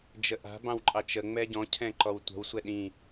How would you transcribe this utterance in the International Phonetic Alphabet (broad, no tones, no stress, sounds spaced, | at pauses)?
d͡ʒ ə ʔ a̤ b ɑ̃ w ǃʼ ɑ t͡ʃ ə ŋ͡m ɛ ɟ ɔ̃ cʰ ɛ̃ ǃ ɔ w tʷ ə̤ w sʷ ɛ ɗ ĩ